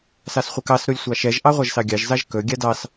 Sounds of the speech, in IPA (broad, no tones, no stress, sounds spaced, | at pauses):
s ɑ s χʷ ə k ɑ s ɾ u lʲ sʷ ɑ ʃ ɛ ʒ ʔ ɑ ʁʷ ɑ ʒ s ɑ ɡʲ ɑ ʒ z ɑ ʒ k ɵ ɡʲ a d ɑ s